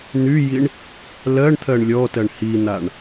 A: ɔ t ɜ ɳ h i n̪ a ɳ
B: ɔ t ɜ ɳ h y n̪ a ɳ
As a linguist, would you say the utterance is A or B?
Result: A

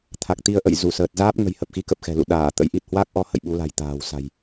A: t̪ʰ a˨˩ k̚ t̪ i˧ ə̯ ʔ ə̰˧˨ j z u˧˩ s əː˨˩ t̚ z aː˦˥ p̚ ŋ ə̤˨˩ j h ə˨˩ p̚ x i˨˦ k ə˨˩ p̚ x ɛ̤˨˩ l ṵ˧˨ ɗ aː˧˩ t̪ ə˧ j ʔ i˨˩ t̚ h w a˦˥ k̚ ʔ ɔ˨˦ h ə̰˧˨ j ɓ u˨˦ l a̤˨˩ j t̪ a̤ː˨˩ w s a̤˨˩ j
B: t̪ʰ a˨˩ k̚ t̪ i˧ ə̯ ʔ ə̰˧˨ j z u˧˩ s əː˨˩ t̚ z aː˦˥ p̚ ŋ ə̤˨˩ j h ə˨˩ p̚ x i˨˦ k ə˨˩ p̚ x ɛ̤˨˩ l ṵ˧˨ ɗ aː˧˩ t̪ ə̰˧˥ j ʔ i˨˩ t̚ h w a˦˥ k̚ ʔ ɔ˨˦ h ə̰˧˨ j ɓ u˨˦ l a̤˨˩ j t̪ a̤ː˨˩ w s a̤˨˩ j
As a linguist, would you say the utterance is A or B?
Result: B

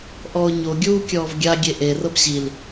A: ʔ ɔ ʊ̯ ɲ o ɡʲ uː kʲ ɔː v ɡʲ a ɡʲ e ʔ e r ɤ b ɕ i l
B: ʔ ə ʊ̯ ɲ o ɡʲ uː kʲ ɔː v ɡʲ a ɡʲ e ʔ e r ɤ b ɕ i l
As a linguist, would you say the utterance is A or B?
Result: A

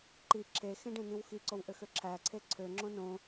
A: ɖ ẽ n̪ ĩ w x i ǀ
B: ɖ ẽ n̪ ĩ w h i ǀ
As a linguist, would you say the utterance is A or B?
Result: A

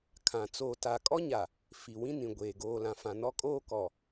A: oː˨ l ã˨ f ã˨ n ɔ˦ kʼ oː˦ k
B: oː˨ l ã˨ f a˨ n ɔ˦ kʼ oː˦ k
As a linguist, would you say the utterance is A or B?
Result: A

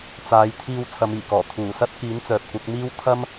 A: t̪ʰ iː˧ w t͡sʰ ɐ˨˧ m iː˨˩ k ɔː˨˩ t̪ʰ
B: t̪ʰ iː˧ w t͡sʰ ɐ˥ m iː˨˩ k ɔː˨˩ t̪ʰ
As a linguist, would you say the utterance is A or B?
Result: A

